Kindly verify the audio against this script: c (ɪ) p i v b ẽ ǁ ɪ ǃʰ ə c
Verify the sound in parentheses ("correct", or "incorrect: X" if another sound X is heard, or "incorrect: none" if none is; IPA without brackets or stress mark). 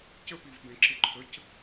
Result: incorrect: ə